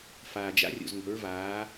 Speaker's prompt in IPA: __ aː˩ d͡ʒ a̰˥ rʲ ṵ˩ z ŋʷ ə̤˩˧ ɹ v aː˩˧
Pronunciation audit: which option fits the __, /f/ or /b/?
f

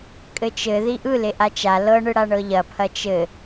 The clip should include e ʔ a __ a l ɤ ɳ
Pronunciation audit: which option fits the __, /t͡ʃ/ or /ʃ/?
t͡ʃ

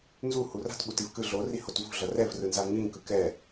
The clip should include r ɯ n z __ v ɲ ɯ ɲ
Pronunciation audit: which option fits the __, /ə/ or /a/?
a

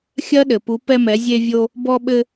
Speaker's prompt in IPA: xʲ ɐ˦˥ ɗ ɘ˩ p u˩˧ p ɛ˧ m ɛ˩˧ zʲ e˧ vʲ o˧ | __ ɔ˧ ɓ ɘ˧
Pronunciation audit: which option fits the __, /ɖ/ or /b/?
b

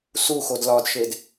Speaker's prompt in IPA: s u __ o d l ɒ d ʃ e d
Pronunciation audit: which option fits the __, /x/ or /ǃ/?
x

